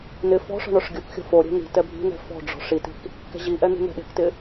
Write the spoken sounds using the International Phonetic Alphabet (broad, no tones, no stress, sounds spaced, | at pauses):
n ɪ f ɔ̤ ʂ ɔ̤ ɳ ɔ ʂ ɡʲ o k xʲ ɔ̤ f o ɾʲ ɛ̤ n̪ i̤ t ɛ bʱ i̤ n ɛ̤ f ɔ̤ ɖ͡ʐ ɔ̤ ʂ i t i̤ k | k ɛ̤ ʑ i ʔ ɛ n̪ i̤ n̪ ɛ̤ ɗ e̤ k t ɪ